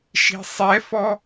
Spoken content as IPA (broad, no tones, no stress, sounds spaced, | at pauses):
ʃ i̤ sˤ ɛ f ɔ